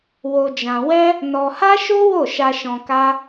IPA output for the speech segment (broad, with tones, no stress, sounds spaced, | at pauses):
w o˧ d͡ʒ ã˧ w ɛ˦ | n ɔ˧ h a˦ ʃ o˦ w o˦˨ ʃ a˧ ʃ ɔ̃˧ k a˦